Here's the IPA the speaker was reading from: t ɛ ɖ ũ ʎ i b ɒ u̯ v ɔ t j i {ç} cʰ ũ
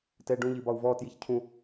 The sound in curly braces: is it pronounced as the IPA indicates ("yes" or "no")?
yes